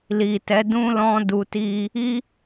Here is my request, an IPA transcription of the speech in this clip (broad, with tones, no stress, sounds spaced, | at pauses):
l i˨ t ɛ˨˦ d ũ˦ l ɔ̃˦ d u˧ t i˦ | i˦